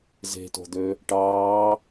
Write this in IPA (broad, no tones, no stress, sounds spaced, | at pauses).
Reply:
z e̤ t o̤ d̪ ø | ʈ ɑː